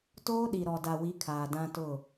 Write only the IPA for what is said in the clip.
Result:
t oː˦ ɗ i˨ ɾ ɔ˨ d a˨ w i˨˦ kʰ aː˨ d ã˦ t ʊ˦˨

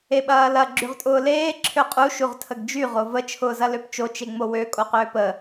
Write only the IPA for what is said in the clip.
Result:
e ɓ ɐː l ɐ ɡ͡ǁ y ʁ tʼ ʊː l eː ǁʰ ø qʼ u ʃ u ʁ tʰ ə ɡ d͡ʒ y ʁ o v ə t͡ʃʰ ʊː z ɐ l ø p t͡ʃ o t͡ʃ e ŋ͡m o w ø kʼ o q ʏː p ə

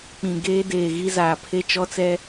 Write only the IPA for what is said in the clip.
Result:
k͡p ĩ˨ ɡ eː˦ d eː˨ ɣ i˦ z aː˨ pʰ e˦ t͡ʃ ɔ˦ t͡s ɛ˦

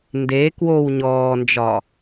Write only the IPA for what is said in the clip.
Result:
n d e k w o w ɲ ɔː n d͡ʒ ɒ

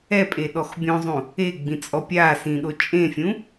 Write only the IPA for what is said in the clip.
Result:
ɛ pʼ e ɗ ɔ x bʲ õ zˤ ũ | e ɡ͡b ĩ t͡sʼ ɔ pʲ a s ĩ ɗ o t͡ʃʼ ẽ fʲ ũ

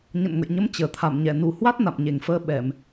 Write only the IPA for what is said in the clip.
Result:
ɲ ə̰˧˨ n ŋ ə̰˧˨ j ɲ ə˨˦ m t͡ɕ əː˨˩ t̪ʰ a˧˩ m ɲ ɛ˧˩ n u˨˩ h w a˦˥ t̚ n a̰˧˨ m ɲ e˨˩ ŋ f əː˧ ɓ ɛ˧˩˨ m

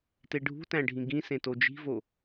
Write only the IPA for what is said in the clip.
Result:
t e ɖʱ ṳ t æ̃ ɖʱ ĩ ɡ ĩ s ẽ t o d͡ʒ i̤ v o

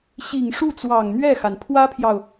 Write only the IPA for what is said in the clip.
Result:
ɕ i˨˩ ŋ ʂ u˥˩ t͡s w ɑ˨˩ ŋ n̪ ɥ ɛ˥˩ x a˩ n pʰ w ä˥ pʰ j ɑ˨ ʊ̯

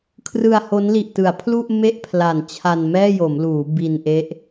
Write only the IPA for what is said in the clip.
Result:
kʰ r ɯ˧ a̯ h o˦˥ n l i˨˩ ʔ t ɯ˩˦ a̯ pʰ l u˥˩ ʔ m e˥˩ ʔ pʰ l a˨˩ n t͡ɕʰ a˧ n m ɛː˥˩ j o˩˦ m l uː˩˦ b i˧ n ʔ e˦˥ ʔ

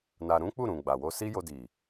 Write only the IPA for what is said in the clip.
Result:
n a˧ ɾ ũ˦ k͡p u˦˨ ɾ ũ˨ ɡ͡b a˨ w o˧ s i˦ j o˧ d i˨

